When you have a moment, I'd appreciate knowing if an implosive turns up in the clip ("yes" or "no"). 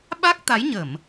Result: yes